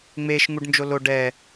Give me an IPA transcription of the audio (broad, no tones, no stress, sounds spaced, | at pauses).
ŋ͡m e ʃ ŋ u ɖ n d͡ʒ o l o ɖ ɛ